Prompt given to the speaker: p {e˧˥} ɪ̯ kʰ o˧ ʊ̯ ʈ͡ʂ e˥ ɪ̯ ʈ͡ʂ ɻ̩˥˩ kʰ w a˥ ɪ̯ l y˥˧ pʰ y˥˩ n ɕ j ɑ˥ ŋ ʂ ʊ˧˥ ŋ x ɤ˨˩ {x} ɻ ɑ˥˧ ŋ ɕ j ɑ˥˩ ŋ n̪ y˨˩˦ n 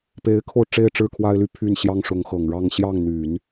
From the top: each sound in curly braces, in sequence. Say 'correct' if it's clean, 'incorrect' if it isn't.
correct, incorrect

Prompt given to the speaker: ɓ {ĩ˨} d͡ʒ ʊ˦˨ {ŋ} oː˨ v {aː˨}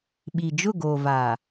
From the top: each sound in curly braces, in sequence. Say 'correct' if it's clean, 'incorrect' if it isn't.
incorrect, incorrect, correct

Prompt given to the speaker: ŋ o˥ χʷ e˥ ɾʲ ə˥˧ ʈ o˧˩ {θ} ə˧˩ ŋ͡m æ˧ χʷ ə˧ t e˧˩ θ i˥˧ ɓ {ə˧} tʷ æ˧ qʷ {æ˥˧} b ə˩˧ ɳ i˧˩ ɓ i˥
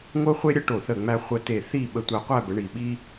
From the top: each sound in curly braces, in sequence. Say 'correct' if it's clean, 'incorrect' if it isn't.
correct, correct, correct

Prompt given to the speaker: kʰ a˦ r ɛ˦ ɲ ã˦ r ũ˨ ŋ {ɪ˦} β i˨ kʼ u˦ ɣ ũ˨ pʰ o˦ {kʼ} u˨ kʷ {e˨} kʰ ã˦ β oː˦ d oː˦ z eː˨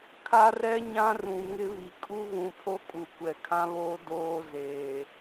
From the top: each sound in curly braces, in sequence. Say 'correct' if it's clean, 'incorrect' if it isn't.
correct, correct, incorrect

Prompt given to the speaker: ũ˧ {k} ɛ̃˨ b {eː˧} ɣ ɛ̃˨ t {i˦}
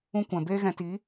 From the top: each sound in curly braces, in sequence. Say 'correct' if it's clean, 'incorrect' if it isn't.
incorrect, correct, incorrect

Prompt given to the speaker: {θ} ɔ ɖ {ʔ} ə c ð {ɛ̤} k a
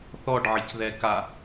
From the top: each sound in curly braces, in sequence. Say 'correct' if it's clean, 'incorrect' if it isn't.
correct, incorrect, incorrect

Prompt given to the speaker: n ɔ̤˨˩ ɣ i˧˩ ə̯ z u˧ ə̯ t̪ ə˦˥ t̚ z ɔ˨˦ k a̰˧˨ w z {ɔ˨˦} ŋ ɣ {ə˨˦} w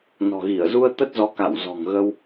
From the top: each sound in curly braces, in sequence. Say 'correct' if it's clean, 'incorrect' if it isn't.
incorrect, incorrect

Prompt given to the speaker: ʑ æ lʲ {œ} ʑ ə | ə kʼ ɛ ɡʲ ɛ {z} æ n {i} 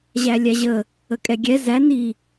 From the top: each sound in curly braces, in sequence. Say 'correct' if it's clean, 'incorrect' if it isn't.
incorrect, correct, correct

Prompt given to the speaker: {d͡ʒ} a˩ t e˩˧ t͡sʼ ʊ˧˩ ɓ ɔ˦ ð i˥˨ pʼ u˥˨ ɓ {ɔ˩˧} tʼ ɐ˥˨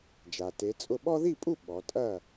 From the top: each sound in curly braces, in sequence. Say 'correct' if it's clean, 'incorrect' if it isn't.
correct, correct

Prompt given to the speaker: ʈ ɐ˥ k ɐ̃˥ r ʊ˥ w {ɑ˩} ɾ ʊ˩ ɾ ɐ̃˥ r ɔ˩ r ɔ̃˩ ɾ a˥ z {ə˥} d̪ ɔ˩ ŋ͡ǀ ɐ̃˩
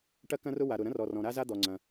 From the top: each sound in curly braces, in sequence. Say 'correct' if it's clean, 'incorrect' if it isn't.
incorrect, incorrect

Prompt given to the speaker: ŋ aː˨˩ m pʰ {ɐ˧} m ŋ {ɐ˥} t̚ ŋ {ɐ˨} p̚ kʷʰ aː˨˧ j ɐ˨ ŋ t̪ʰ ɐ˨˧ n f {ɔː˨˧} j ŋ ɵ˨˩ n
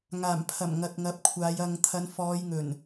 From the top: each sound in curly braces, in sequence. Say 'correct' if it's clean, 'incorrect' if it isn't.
incorrect, incorrect, incorrect, correct

